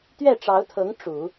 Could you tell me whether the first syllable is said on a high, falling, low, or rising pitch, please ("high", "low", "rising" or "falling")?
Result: falling